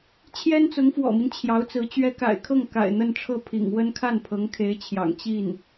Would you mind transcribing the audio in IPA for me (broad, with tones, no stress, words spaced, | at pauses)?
t͡ɕʰjɛ˥nt͡sʊ˧˥ŋfwɔ̰˨˩mi˦n t͡ɕʰjɑ˧˥ʊ̯t͡sɹ̩˧˥t͡ɕɥɛ˥ ka̰˨˩ɪ̯kʰɤ˥˩ŋ ka̰˨˩ɪ̯ n̪ə˥˧nʈ͡ʂʰɤ˥˩pʰḭ˨˩ŋ wə˥n kʰa˥˩npʰɤ˧˥ŋkʰe˧˥ɪ̯t͡ɕʰjɑ̰˨˩ŋ t͡ɕi˥˩n